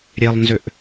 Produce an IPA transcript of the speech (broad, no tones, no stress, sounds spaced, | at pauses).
ɾʲ e lˠ n z ʏ ʔ